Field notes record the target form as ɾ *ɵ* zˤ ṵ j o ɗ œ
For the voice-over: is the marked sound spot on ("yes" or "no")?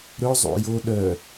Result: yes